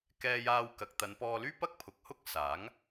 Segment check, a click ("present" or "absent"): absent